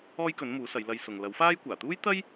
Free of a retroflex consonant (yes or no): yes